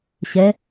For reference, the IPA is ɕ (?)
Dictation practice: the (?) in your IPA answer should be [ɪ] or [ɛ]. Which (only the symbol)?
ɛ